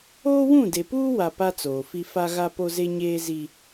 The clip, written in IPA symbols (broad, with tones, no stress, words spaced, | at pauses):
oː˦wũ˦˨ de˨puː˦wa˨ pa˦t͡soː˨fi˦ fa˦ɣa˦po˦ze˦ ɲeː˦zi˦